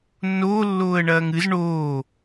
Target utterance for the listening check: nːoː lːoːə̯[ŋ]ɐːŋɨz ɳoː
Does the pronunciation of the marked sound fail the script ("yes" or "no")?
yes